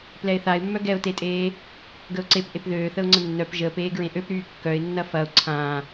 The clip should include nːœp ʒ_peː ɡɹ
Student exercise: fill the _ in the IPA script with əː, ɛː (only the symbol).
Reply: əː